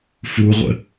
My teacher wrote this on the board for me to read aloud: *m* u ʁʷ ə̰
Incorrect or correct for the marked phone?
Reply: incorrect: f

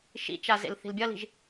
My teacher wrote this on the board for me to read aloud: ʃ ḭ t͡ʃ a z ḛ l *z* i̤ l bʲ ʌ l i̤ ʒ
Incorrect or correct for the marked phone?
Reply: incorrect: θ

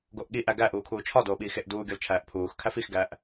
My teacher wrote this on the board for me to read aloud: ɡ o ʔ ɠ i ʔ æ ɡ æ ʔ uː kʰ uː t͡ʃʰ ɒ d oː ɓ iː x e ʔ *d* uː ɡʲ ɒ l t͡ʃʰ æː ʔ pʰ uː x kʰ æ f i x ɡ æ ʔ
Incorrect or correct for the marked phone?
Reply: correct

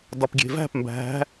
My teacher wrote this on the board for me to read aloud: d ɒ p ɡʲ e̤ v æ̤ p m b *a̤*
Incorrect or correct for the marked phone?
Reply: incorrect: æ̤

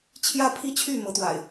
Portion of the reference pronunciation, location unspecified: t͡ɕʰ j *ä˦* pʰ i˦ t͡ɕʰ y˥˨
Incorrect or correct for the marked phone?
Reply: correct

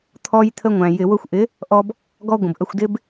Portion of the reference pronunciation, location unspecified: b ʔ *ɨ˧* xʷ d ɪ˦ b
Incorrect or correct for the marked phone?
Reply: incorrect: ə˧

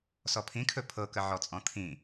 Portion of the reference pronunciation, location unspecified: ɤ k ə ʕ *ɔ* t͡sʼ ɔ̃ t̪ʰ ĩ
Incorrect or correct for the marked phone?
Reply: correct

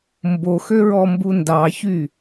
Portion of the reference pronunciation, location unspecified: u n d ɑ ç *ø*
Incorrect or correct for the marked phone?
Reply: incorrect: y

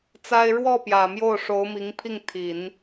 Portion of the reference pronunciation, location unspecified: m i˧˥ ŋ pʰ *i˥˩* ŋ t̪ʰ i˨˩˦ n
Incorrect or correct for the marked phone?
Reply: correct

